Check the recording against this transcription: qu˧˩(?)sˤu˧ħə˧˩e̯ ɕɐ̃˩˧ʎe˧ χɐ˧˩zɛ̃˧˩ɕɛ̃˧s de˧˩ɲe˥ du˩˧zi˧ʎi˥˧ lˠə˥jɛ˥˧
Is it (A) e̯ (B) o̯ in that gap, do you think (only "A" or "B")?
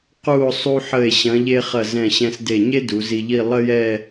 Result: B